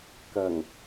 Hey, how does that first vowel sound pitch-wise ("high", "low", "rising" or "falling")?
low